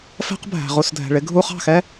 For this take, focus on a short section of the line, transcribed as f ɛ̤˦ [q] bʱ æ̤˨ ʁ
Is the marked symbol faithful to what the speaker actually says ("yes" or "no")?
yes